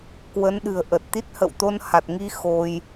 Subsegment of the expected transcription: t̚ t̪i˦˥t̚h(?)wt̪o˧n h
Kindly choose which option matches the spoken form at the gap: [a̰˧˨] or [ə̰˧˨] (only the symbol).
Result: ə̰˧˨